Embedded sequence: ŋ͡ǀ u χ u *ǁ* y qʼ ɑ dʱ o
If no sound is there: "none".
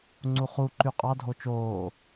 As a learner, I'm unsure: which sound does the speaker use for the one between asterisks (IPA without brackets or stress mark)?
ǃ